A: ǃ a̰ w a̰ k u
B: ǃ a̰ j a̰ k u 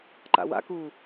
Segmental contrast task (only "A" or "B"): A